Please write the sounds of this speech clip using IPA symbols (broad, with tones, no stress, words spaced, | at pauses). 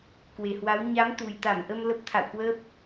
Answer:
kwe˨˩hwa˨˦w ɲa˨˦m t̪u˨˩jt̪a˧˩mʔə˧m lə˦˥p̚t̪ʰa̰˧˨wkwəː˦˥p̚